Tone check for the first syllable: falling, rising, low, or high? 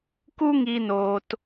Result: high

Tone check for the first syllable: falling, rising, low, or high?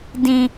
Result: high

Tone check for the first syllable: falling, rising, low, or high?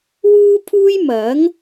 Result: high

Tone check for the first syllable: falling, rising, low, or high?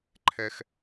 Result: high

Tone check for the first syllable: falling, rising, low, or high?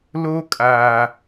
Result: high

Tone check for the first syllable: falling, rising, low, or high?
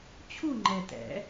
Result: falling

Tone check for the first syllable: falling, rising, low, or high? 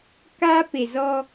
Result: high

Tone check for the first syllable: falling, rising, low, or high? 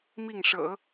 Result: falling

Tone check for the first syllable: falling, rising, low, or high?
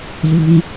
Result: high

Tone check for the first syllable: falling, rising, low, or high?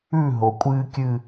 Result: falling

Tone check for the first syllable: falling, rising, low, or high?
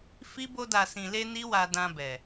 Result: high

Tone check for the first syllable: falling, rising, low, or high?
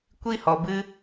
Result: high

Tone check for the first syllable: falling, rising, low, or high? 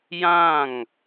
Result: falling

